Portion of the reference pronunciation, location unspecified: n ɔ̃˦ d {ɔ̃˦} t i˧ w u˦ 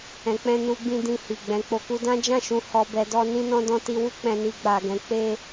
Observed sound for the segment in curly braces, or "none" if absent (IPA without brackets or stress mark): ɔ̃˦